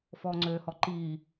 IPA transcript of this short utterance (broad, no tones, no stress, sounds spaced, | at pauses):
f ɔː ŋ͡ǀ øː h ɔ ǃ iː